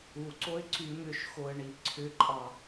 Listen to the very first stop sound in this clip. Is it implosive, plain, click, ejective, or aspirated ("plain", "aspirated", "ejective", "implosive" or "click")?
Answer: click